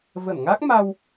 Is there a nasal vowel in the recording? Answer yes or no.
no